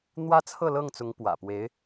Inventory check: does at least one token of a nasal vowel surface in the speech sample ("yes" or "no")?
no